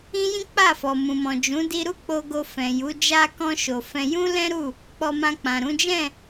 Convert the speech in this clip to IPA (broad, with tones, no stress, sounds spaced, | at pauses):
ĩ˦ j ĩ˦ k͡p a˦˨ f ɔ˨ m ũ˨ m ɔ̃˨ d͡ʒ ũ˨˦ d i˧ ɾ u˦ k͡p o˧ ɡ o˧ f ɛ̃˨ j u˨˦ d͡ʒ a˧ k ɔ̃˧ ʃ o˨ f ɛ̃˧ j ũ˦ l ɛ̃˦ ɾ u˦˨ | k͡p ɔ˧ m ã˧ k͡p ã˨ ɾ ũ˨˦ d͡ʒ ɛ̃˦˨